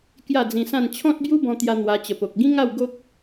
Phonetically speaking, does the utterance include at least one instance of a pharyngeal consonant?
no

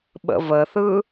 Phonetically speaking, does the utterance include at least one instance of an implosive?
yes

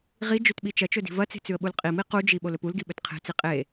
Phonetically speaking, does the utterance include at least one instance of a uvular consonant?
yes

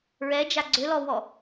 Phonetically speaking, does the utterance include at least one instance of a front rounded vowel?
yes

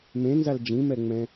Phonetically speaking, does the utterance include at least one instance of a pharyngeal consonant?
no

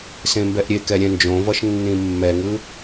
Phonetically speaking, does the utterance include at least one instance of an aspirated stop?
no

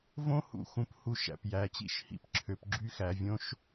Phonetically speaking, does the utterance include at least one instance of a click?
yes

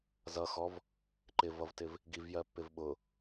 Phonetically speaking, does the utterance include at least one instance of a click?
yes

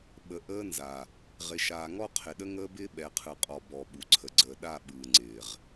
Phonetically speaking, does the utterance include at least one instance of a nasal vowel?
no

